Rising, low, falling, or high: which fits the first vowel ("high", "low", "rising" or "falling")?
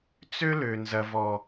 high